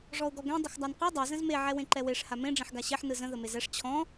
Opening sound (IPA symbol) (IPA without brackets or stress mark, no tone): ʐ